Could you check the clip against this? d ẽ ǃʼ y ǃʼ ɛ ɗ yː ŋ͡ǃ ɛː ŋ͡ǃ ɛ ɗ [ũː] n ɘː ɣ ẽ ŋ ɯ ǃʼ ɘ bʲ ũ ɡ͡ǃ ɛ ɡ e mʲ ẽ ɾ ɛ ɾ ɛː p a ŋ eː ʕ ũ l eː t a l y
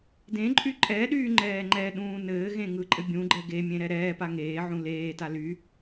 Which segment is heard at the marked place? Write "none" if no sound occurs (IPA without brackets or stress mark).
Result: ũː